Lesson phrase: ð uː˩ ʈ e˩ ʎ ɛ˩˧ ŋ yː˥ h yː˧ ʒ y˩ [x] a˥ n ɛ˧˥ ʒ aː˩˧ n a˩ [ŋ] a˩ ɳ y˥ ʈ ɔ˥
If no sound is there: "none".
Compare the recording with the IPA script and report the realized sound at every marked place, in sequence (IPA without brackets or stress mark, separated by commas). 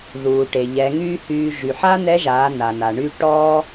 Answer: ħ, n